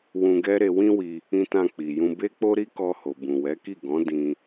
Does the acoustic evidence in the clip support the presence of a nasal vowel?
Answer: yes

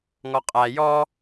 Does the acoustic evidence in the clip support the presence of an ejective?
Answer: yes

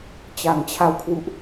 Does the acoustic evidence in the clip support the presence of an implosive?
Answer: no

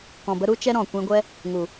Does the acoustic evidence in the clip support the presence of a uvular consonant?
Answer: no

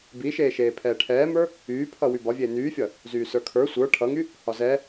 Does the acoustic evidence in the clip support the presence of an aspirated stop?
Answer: yes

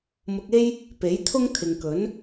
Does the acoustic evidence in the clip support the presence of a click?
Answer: no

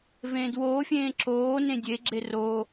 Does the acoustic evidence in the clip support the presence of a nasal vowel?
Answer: yes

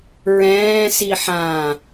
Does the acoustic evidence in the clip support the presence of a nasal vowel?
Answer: yes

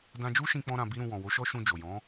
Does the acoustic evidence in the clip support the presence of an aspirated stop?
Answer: no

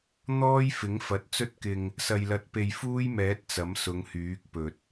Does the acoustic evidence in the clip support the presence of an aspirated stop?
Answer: no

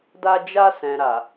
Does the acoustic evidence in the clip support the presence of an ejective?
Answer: no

